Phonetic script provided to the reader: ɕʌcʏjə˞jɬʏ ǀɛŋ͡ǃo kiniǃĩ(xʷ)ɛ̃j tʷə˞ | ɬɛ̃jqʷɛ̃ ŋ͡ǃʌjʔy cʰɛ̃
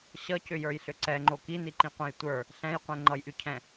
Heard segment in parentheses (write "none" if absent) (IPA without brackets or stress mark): qʷ